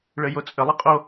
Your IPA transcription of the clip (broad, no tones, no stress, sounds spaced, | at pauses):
ɭ ɘ j o t͡sʼ ə lˠ ɪ qʼ o